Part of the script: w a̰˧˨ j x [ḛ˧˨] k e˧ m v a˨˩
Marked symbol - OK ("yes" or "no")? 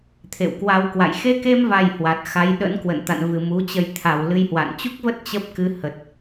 no